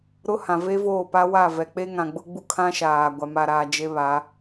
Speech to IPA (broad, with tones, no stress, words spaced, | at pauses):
ɾʊ˦hã˨ve˦voː˦˨ pa˦wa˦˨vɛ˨k͡pe˦ ŋã˨ɡ͡bʊ˦ɡ͡bu˦ kʰã˦ʃaː˨ ɡʷa˨ma˨ɾaː˨ d͡ʒe˦βa˨˦